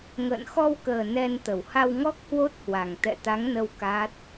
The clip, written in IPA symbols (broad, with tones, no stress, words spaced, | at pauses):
ŋə̰ː˧˨n xɔ˧wkəː˨˩ nɛ˧nt̪ə˧˩w ha˧wŋɔ˦˥k̚hwo˦˥t̚hwa˨˩ŋ t̪ɛ̰˧˨t̪a˨˦ŋ nə˧w ka˦˥t̚